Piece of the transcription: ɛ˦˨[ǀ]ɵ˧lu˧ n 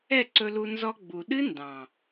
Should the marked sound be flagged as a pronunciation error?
no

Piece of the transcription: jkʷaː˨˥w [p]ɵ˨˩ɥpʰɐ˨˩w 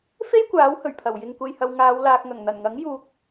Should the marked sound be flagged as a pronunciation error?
yes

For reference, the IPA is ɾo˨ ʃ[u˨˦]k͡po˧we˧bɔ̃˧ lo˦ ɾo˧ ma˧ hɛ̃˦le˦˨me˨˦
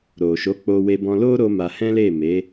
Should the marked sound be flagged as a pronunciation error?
yes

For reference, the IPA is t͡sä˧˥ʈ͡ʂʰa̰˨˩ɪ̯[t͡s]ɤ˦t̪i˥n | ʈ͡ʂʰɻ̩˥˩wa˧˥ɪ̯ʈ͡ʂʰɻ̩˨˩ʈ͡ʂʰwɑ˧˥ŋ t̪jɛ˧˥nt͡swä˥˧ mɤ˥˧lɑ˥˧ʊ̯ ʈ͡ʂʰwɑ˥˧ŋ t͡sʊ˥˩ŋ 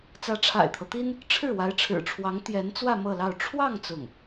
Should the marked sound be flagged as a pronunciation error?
yes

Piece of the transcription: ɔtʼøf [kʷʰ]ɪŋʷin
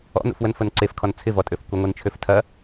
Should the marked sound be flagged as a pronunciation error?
yes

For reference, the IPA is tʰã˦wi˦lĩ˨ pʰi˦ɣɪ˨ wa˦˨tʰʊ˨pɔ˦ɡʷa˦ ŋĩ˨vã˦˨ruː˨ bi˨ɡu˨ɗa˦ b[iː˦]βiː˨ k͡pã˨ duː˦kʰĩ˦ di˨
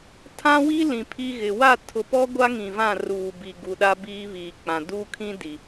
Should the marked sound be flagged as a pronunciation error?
no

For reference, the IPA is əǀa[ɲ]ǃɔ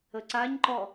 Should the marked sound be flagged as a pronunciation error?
no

